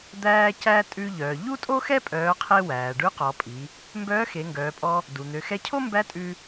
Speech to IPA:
d̪ æː˧ c æ˧ tʼ ʉ˧ ʎ œː˩ ʎ u˥ tʼ o˥ x ɛ˥ pʼ œː˩˧ qʰ e˧ w æː˩ ɖ ʉ˧˥ q ɔ˩˧ pʼ i˩˧ | m b œː˧˥ x e˩˧ ŋ ɡ œː˩˧ pʼ ɔ˧ | d u˩ n̪ ø˩˧ x ɛ˧˥ cʰ o˥ m b æ˧˥ tʼ ʉ˧

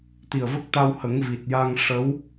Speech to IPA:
t̪ i˨˩ ə̯ v ə˦˥ k̚ t̪ a˧ w h ə˨˩˦ ŋ v i˨˩ t̚ j a˧ ŋ ʂ ə˧˥ w

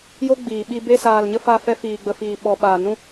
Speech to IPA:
j o˦ ɡ͡b iː˨ ɓ i˧ b e˧ s aː˨ l ɲ ə˧ f a˦˨ f ɛ˦ f iː˨ ɡ͡b ə˨ f iː˨ ɓ ɔ˨ ɓ aː˨ n ũ˦

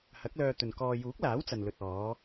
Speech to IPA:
h ɐ˨˥ k̚ l œː˧ t̪ ɵ˨ n k ɔː˧ j uː˨˥ k̚ l aː˨˥ w t͡s ɐ˨ n l ɵ˨ t̚ ɔː˨˧

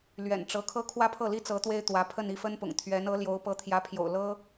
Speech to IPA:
l ɥ ɛ̰˨˩ n ʈ͡ʂ ɤ˧˥ kʰ ɤ˥ kʰ w ä˥ pʰ ɤ˥˩ l i˥ t͡s ɤ˧˥ t̪ w e˥ ɪ̯ t̪ w ä˧˥ pʰ ə˥˧ n i˥˩ f ə˥ n p ʊ̰˨˩ ŋ t̪ʰ ɥ ɛ˧˥ n ɤ˧˥ l j o˧˥ ʊ̯ p ɤ˧˥ t̪ʰ j ä˧˥ pʰ j o̰˨˩ ʊ̯ l ɤ˥

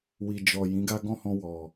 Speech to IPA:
w i˨ d͡ʒ ɔ˨ j ĩ˨˦ ɡ a˦ ɡ ɔ̃˦˨ h ɔ̃˧ w ɔ˨

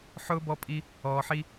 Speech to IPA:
ħ ʊː˦ b ɔ˦ pʼ i˦ | ɔː˧ ħ i˦

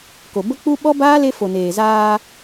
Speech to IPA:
k o˨ b ə˦ k͡p u˦ ɓ ɔ˦ b aː˦ l e˧ f o˨ n eː˨ z aː˧

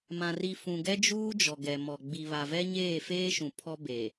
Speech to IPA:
m ã˨ r i˨ f ũ˨ ɡ ɛ˦ d͡ʒ uː˦ d͡ʒ ɔ˨ ɡ ɛ˨ m ɔ˨ ɡ͡b i˨ β a˨ v ɛ˦ ɲ eː˦˨ f eː˦ ʃ ũ˨ pʰ ɔ˦ b e˨

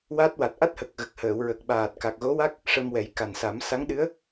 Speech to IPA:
w a˦˥ t̚ w a˨˩ t̚ ʔ a˦˥ t̚ h ə˨˩ k̚ ɣ ə˨˩ k̚ h əː˨˩˨ w ɹ ə˨˩ k̚ ɓ aː˨˩ t̚ k a˨˩ k̚ ɣ o˧˥ w a˦˥ k̚ | ʂ ə˧ m w ɛ˨˩˦ j k a˨˩ n s a˨˩˦ m s a˧˥ ŋ ɗ ɨ˧˥ ə̯

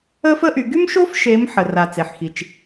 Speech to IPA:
ə˥ f ə˥ ʔ y˨˦ ɡ y˥ m ʃ o˥ f ʃ e˨˦ m ħ ə˨˩ r a˨˩ t͡s e˨˩ ħ x i˨˩ t͡ʃ

